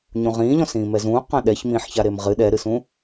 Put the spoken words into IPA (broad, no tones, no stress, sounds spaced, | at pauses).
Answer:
ɲ ũ ʁ ĩː ʎ ɔ̃ s ĩː m ɛ z ũː q ã ɗ ɛ ç m ĩː ħ ç a ɾ e m ʁ ɨ ɗ ɛ ɾ ɨ s ũ